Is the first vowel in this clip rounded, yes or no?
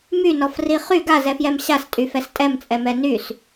yes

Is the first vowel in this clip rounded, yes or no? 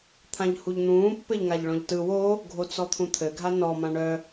no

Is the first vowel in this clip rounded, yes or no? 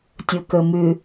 yes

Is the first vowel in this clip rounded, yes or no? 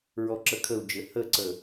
yes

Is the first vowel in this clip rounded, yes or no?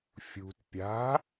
yes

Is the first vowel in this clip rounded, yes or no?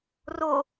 yes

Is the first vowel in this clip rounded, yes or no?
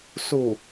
yes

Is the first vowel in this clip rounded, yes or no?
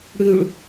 yes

